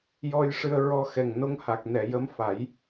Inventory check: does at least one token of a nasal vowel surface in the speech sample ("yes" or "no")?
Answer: no